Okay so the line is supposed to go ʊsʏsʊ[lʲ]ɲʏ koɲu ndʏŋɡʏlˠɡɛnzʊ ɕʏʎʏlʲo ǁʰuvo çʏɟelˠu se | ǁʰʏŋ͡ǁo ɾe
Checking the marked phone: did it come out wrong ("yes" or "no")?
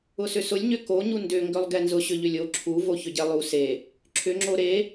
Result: no